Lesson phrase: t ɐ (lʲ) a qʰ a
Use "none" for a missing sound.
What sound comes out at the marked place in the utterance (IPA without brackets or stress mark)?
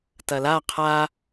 l